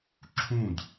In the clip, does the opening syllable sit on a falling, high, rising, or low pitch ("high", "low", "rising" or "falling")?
falling